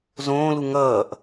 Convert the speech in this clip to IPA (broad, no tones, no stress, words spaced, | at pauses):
zõːlu ŋʌːʔ